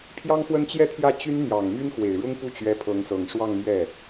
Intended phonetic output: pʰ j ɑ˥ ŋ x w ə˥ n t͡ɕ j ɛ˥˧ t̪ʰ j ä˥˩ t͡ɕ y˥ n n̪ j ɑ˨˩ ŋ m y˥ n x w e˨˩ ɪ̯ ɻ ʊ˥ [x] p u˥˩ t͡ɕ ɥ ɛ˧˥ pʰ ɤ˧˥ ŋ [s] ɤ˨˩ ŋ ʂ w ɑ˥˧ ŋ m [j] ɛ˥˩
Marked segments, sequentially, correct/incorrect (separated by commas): incorrect, correct, incorrect